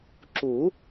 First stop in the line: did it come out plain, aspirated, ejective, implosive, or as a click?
click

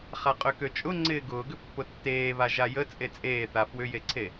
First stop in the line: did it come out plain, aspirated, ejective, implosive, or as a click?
ejective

